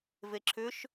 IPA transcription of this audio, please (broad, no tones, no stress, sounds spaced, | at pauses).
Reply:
v e ǁʰ ʏ ʃ